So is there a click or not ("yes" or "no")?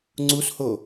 yes